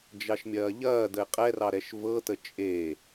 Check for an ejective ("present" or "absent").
present